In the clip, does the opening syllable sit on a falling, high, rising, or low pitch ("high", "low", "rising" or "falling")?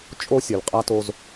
high